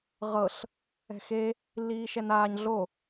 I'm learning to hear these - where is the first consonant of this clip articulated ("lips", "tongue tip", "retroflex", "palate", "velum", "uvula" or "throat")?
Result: uvula